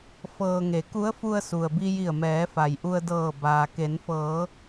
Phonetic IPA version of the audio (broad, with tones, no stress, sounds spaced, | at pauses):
f ɤː˧ ŋ e˩˧ k u˧˥ ə̯ f u˧ ə̯ s u˩ ə̯ b i˧ j i˧˩ ə̯ m ɛː˩˧ f a˩ j ʔ u˧ ə̯ d ɤː˧˩ b aː˩ k e˩˧ n f ɤː˩˧